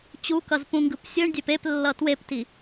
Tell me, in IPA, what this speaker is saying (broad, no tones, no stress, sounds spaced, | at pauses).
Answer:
t͡ɕ u k ʌ z p ũ ŋ ɡ ɯ p sʲ ɯ ɳ dʲ ɛ p e p lː ʌ t w e p t i